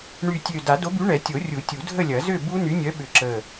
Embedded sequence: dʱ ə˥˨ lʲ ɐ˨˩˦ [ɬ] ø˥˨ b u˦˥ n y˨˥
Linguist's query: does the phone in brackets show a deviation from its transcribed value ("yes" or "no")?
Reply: yes